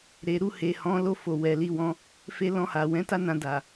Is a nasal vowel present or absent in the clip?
present